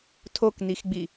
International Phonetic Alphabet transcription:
tʰoknixɡ͡bi

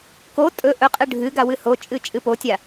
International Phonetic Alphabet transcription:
ko tʼɵ ʔɵ qʼɨɖʱɨɡa wɨhot͡ʃʼɨ t͡ʃʼɨpotʲa

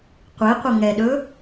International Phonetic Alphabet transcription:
qʷe qʷəŋɛɗɵ

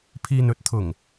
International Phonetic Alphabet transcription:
pʰiː˨nɵ˨˥t̚t̪ʰʊ˨˩ŋ

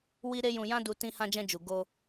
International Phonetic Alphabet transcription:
wi˦ ɾe˦jũ˧ jã˦du˧ tĩ˧hã˧d͡ʒɛ̃˧ d͡ʒu˨ ɡo˧

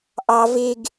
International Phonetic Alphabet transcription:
ʔɑ veɡ

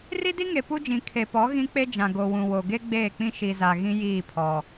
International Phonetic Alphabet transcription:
ri˦di˦ŋe˨ pu˦d͡ʒĩ˨ kʰe˨pɔ˨˦ ɣĩ˦ k͡pe˦d͡ʒã˨ ɡo˨wũ˨ wo˨ɡe˦ ɡ͡beː˦˨k͡pĩ˦ ʃi˨za˨ ɣĩ˦ jiː˦˨pʰɔ˨

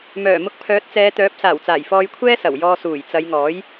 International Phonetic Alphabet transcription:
mœː˨˩mʊ˧k̚ pʰœː˨˥t̚t͡sɛː˨˧t̪œː˨˥p̚ saː˨˩wt͡saː˨˩jfɔː˧jkʷʰɛː˥ sɐ˨˩wjɔː˧ suː˨˩jt͡sɐ˨˧jŋɔː˨˥j

